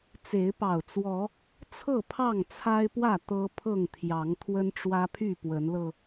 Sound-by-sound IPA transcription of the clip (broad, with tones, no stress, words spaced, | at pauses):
t͡se˨˦ɪ̯pɑ˨˩ʊ̯t͡swɔ˨˦ | t͡sʰɤ˥˨pʰɑ˥˨ŋt͡sʰa˦ɪ̯ pwä˥˨ t̪ɤ˦pʰɤ˥˨ŋt̪ʰjɑ˨˦ŋ t̪ʰwə˦nʈ͡ʂwä˦pʰy˥˨ pwə˨˦nlɤ˧